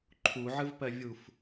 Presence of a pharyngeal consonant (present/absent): present